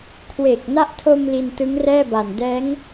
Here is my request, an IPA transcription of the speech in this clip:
kʰ w e˨˩ k̚ n a˦˥ ʔ tʰ o˧ m l i˧ n t ɯ˦˥ ŋ r ɛː˥˩ b a˨˩ n d ɛː˦˥ ŋ

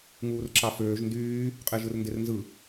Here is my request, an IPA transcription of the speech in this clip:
ŋ uː r ǁ ɑ f øː ʒ n d yː | qʼ e ʒ ɯ r n d e r n z ɯ

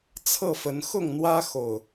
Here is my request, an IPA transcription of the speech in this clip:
t͡sʰ ɤ˥˨ f ə˨˦ n x ʊ˥˨ ŋ n̪ w ä˦ x o˨˩ ʊ̯

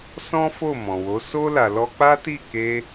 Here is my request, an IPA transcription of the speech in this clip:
s ɔ̃˦ f o˦˨ m ɔ̃˨ w o˨˦ s o˦ l a˧ l ɔ˦ k͡p a˦ t i˦˨ k e˧

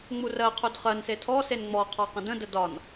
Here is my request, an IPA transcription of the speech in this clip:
ŋ͡m u r ɜ qʰ u d χ ɜ n s e tʰ ɔ s e n ŋ͡m ɔ qʰ ɒ q ə̃ d ə̃ d ə d ɒ n

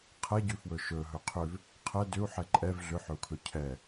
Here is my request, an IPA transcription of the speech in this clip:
qʰ ɛ ɟ ʉ f w ɵ ʃ ɵ ɦ ɵ qʰ ʏ v | qʰ ɛ d ʏ u̯ ħ ɛ ǃʼ ɛ v ɮ ʏ ħ ɵ u̯ kʰ ɵ cʰ ɛ

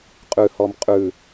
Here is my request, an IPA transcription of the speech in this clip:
qʼ ʉ h ɔ m qʼ ʉ

